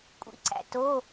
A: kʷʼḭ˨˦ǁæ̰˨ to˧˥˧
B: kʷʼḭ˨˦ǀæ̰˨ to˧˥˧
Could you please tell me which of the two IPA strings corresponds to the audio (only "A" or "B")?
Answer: B